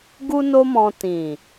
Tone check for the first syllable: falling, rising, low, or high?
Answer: high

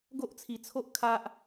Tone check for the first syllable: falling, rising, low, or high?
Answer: high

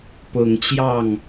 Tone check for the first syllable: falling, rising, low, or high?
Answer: low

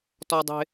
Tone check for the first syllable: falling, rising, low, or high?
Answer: high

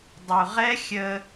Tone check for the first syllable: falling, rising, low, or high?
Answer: low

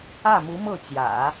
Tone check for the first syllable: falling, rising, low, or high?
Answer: falling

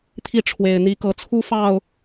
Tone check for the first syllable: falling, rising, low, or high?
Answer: falling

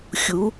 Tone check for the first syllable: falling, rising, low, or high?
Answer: rising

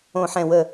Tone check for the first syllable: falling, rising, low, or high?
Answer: low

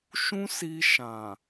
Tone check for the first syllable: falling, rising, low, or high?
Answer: high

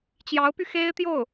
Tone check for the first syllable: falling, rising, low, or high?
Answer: rising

